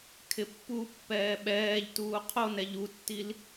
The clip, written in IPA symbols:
kʰ ɪ pː u pː ɛː ɓ ɛː ʎ t uː qʰ o n ɛ ʎ u tː i l

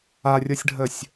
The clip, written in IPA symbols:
a rʲ ɤ sʲ ɖʱ ə sʲ

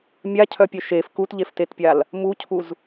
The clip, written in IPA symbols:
mʲ a cʰ œ pʲ œ ʃ e f k u t ʎ e f t e t pʲ a l | m u cʰ u z

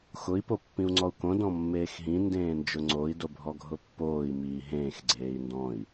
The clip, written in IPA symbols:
x ʊ i̯ p o pː ĩ u̯ ŋ͡ǀ ɔ u̯ k õ d ɔ̃ mː eː x ɦ ĩ n d ẽː n d͡ʒ ʊ ŋ͡ǀ o i̯ d o bʱ ɔ ɡʱ ʊ pː oː i̯ m iː ɦ ẽː x ɡ͡ǀ eː i̯ n d ɔ̃ i̯

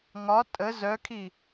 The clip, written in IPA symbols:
ŋ ɒ tʼ ə z œ kʰ i

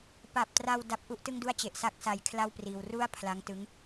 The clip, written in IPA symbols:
p a˨˩ p̚ t r a˧ w d a˦˥ p̚ ʔ u˥˩ ʔ t ɯ˥˩ ŋ d u˥˩ a̯ t͡ɕ e˨˩ ʔ s a˥˩ k̚ s a˧ j kʰ l a˥˩ w p r iː˧ w r u˥˩ a̯ pʰ l a˦˥ ŋ t ɯ˦˥ ŋ

